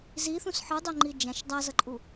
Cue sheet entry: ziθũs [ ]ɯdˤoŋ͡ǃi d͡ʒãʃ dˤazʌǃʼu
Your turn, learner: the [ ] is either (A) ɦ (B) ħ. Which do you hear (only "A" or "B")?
B